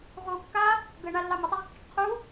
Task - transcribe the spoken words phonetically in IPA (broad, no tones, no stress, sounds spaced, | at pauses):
ʁ u kː a | ɡ ə ɳ a lː ɑ m ə tˤ ə ʁ kː i ʈ qʰ u